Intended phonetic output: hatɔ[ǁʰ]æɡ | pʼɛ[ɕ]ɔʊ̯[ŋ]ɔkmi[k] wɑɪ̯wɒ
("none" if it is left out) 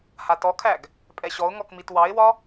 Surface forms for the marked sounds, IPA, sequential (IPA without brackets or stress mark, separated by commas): kʰ, ɕ, ŋ, t